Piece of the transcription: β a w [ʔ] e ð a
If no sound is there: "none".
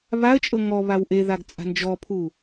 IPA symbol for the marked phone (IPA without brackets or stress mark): ʔ